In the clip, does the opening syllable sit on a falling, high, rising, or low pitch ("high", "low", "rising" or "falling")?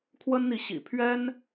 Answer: high